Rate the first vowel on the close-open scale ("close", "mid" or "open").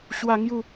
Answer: open